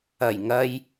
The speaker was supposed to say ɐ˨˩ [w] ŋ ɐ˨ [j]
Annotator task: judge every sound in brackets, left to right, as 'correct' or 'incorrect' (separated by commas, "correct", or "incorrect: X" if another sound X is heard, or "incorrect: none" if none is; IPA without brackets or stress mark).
incorrect: j, correct